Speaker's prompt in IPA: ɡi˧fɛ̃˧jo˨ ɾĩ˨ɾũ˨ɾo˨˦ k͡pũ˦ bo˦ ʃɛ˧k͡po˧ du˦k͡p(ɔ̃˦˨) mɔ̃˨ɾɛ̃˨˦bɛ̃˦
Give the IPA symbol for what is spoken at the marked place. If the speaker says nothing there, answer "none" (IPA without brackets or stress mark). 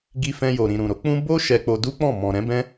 ɔ̃˦˨